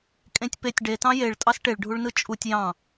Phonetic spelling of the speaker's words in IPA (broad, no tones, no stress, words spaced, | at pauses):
kʼẽtʲpetʲ ɖetɑ̃ jeɭ tʼɑsʈeɭɖʱuɭnɯ t͡ʃʼutʲ jɑ̃